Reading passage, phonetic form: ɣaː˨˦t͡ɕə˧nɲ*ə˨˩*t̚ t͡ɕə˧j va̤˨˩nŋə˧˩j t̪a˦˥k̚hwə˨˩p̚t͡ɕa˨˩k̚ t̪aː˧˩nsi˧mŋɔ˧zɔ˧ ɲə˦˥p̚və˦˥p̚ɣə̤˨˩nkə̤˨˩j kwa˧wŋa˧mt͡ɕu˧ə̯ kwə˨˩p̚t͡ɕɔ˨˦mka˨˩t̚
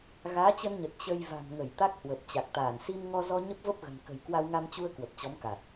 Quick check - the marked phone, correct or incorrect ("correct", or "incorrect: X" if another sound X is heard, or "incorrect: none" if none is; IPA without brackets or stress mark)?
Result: correct